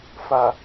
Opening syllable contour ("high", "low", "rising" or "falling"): low